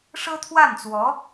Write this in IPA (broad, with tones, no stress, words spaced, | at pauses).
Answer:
ʂɤ˥t̪ʰwa˥˩nt͡swɔ˧˥